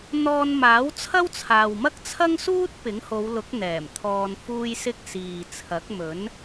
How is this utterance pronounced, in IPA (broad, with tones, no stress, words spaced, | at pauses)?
n̪ɔː˧nmaː˨˥wt͡sʰɐ˥wt͡sʰaː˨w mɐ˥k̚t͡sʰɐ˥ŋsuː˥t̚ pɪ˨˥ŋho˨˧wlʊ˨˥k̚ n̪ɛː˨˩m t̪ʰɔː˧nfuː˥jsɪ˥k̚ siː˨t͡sʰɐ˨˥k̚mɵ˨˥n